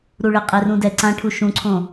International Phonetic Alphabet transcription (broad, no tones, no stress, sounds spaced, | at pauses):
ɾ u ɭ ɪ qʼ e r ũ d ɛ ǀ ã ʈʰ u ʃ ũ ǀʰ õ